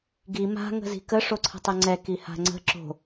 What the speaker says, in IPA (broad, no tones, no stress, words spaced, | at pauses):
ɡi ma̤ ŋə̤zi̤kə ʂoǀʰə̤tˤɛŋ͡ǀɛ kiha̤ŋ͡ǀə̤ ǁo̤